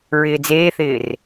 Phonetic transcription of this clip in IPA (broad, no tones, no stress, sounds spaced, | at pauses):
ɹ ɪː d͡z eː θ ɪː r